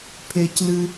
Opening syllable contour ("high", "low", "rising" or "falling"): high